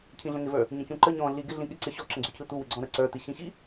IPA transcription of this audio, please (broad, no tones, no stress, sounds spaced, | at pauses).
cʰ ĩ ɮ ə̃ ŋ ɪ v ə˞ | ɲ ə̃ c ũ ǃ ə ɲ ɔ̃ ɮ i ɡ ɪ ɮ ĩ ɠ ɪ ǀ ɪ ɕ ɔ ǁ ə̃ ɡ͡ǀ u cʰ ɯ t̪ u w ɪ ɡ͡ǀ ɔ̃ ɾ ə ǀ ə˞ t̪ i ɕ ĩ ɕ i